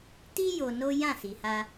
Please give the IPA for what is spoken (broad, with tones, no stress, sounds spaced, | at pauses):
t i˦ j o˧ n o˦ j ã˦˨ s i˨ h a˧